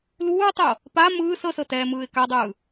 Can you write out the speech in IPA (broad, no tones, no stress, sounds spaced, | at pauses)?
l uː tˤ o | p a m ɯː s ɤ s ɤ t ɛː m ɯː ɪ̯ k a dˤ ɯː